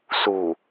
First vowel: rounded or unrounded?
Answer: rounded